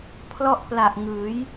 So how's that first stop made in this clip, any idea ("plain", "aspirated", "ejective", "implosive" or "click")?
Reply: aspirated